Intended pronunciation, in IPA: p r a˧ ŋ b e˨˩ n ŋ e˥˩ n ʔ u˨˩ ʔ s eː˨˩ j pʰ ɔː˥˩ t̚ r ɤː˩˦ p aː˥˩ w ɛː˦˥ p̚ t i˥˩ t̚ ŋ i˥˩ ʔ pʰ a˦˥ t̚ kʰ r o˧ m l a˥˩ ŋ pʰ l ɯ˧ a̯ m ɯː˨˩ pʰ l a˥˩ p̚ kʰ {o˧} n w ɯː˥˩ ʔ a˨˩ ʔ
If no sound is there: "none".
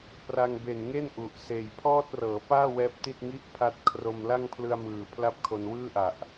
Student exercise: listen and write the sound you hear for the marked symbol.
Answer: o˧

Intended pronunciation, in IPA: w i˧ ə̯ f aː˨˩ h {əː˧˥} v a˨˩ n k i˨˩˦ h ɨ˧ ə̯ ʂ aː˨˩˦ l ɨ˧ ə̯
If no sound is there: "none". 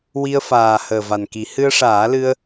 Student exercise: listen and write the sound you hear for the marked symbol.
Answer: əː˨˩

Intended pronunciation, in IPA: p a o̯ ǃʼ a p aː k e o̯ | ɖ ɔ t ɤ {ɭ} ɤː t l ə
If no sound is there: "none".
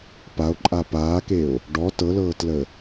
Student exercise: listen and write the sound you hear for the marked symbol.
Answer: l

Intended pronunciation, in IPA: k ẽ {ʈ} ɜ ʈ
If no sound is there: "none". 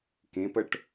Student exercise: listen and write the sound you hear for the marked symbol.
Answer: p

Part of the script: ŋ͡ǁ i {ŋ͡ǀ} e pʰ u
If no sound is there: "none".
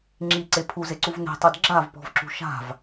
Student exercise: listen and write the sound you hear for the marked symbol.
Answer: ǀ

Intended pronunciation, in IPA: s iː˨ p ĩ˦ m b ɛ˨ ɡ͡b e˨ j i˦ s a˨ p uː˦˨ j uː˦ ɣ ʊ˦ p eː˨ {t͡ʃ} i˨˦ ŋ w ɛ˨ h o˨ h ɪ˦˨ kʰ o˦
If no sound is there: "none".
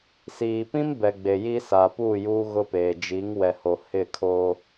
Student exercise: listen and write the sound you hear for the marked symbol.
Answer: d͡ʒ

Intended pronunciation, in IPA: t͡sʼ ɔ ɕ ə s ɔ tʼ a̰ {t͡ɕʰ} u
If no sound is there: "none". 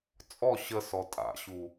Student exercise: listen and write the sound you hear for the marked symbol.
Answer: ɕ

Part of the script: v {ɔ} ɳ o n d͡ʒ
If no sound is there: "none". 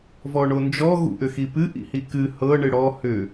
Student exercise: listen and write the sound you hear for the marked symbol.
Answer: ɔ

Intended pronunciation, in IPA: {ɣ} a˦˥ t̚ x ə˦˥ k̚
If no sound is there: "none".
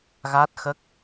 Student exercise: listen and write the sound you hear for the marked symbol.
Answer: ɣ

